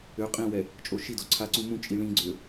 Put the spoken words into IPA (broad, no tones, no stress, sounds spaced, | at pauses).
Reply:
ø qʼ ĩ w ɛ | t͡ʃʼ o ʃ i d o ǀʰ a ǀ ũ m ũ t͡ʃʼ i ɭ ĩ ɡ͡ǀ ø